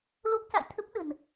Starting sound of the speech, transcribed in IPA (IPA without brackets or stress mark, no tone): l